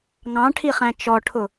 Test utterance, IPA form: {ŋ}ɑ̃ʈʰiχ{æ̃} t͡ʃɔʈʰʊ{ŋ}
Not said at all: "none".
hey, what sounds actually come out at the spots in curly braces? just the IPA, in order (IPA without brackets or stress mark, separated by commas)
ŋ, æ̃, none